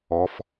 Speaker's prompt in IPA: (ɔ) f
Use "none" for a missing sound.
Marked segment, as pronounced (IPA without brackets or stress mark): ɔ